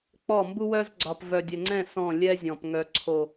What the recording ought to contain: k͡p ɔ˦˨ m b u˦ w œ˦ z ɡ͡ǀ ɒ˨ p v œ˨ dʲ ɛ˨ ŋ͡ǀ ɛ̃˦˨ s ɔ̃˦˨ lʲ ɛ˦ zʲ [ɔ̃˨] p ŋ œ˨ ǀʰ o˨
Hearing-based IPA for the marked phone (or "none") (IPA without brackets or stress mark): ɔ̃˨